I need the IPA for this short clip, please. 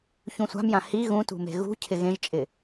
ç ũ sʷ a̤ m j ã h i ɣ ũ t ṳ m e̤ ɣ ṳ cʰ ɪ ɣ ẽ ʒ t͡ʃʼ ɪ

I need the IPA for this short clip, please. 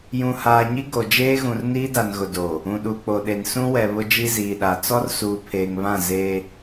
j ũ˨ h aː˨ ɲ i˦ ɡ o˨ d͡ʒ eː˦ ɣ ũ˨ r n iː˦ d a˨ n ɣ ʊ˨ d o˨ | ũ˨ ɗ uː˨ k͡p o˨ ɗ e˨ n s ũ˦ w ɛ˨ β ʊ˦ d͡ʒ i˦ z iː˨ ɗ a˨ t͡s ɔ˦ r s uː˨ pʰ eː˨ ŋ β ã˦˨ z e˦

